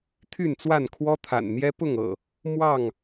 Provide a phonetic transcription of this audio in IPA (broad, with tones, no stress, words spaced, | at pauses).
t̪ʰy˥˨nt͡swa˥˨nkʰwɔ˦ t̪ʰa̰˨˩nn̪jɛ˦ pʊ˥˨ŋɤ̰˨˩ | mwɑ˥˨ŋ